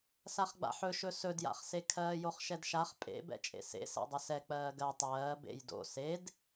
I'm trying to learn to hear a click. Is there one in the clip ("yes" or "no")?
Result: no